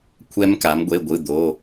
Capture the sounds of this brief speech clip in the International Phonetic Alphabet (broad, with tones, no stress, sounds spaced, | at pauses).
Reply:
kʷʰ ɛ˦˥ m k a˩˧ m ɡʷ e˩˧˩ ɡʷ ɯ˩˧˩ d̪ o˩˧˩